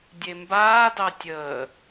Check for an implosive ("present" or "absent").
absent